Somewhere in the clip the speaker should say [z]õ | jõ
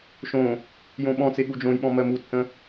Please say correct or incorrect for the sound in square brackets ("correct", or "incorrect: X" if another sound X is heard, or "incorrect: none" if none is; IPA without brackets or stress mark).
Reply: incorrect: ʃ